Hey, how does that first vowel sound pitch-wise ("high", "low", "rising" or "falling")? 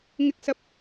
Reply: high